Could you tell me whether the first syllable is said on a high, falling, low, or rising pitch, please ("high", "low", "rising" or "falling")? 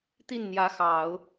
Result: falling